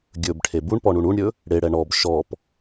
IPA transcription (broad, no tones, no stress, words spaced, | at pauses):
ɡʲɵbʈʰe buɳpɔɳuɳ uɳɾʲɵ | ɽeɽɛ ɳɔb ʃɔp